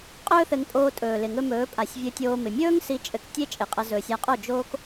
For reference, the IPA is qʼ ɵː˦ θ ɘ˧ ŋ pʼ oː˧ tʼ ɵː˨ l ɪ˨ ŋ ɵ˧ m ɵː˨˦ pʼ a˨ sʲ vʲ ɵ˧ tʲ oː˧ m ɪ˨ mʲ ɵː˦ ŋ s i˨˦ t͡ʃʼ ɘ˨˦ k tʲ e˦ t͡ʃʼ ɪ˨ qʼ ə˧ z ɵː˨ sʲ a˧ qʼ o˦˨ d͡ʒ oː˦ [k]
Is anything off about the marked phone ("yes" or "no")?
no